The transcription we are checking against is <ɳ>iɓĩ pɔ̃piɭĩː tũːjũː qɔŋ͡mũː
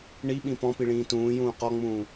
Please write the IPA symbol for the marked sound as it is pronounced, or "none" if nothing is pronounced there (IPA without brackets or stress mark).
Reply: ɳ